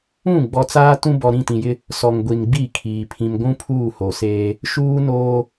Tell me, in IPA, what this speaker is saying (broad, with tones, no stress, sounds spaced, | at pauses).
ũ˦˨ ɡ͡b ɔ˨ t͡s aː˦ t ũ˦ b ɔ˨ ɾ ĩ˦˨ t ĩ˨ j ɪ˦ | s ɔ˨ ŋ ɡʷ i˨ n ɡ͡b i˦˨ kʰ iː˨ pʰ ĩ˨ m ɡʷ ũ˦ pʰ uː˦˨ h o˨ s eː˦ | ʃ uː˦ n oː˦